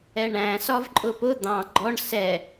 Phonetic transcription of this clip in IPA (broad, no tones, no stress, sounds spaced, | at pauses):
ɛ ɳ æ̃ s ɒ v ǃʼ ʊ p ʊ d̪ ɑ̃ ɡ͡ǃ ɔ ɳ s ɛ